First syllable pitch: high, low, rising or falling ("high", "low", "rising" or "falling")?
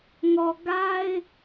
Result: low